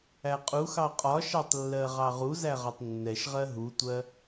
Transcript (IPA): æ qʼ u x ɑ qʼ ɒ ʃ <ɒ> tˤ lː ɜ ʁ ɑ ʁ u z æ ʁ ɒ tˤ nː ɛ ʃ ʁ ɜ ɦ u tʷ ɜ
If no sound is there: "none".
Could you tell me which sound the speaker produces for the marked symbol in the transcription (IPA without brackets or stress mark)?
ɑ